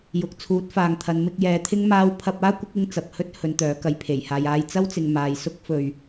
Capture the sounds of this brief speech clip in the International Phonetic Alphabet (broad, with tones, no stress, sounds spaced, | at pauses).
j ʊ˨ k̚ t͡sʰ uː˨˥ t̚ f aː˨ ŋ t̪ʰ ɐ˨˧ n m ɪ˧ k̚ j ɛː˨˧ t̪ʰ ɪ˥ ŋ m aː˧ w pʰ ɐ˧ p̚ aː˥ kʷ ɪ˨˥ k̚ ɪ˧ ŋ t͡s ɐ˨ p̚ h ɵ˥ t̚ h ɵ˨˧ n t̪ œː˨˥ k ɐ˧ j pʰ e˨˩ j h aː˨ j aː˧ j t͡s ɐ˥ w t͡s ɪ˨ ŋ m aː˨ j s ʊ˥ k̚ f ɵ˧ ɥ